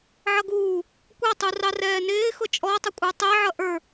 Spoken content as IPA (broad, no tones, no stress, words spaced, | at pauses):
ʕʌɡuː | kʷɑtˤurɑ rɛːnɪː xʊt͡ʃʼɔtˤə kʷʼə˞tˤæʕʌ ʔə˞